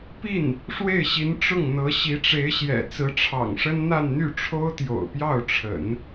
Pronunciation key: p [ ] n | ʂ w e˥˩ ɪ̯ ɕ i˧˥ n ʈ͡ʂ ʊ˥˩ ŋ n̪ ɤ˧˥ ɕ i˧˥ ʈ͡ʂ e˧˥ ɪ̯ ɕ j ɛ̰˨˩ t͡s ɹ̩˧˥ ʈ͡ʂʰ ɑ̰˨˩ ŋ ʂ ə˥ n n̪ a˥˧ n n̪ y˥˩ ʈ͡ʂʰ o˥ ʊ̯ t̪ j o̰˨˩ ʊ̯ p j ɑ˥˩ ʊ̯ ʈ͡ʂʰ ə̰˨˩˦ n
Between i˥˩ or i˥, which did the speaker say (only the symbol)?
i˥˩